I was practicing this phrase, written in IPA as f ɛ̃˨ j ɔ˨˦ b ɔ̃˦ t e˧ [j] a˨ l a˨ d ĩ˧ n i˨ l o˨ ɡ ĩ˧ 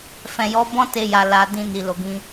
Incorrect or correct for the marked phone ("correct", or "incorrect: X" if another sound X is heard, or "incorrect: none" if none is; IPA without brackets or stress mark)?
correct